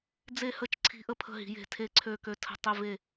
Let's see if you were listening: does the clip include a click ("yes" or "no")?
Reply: yes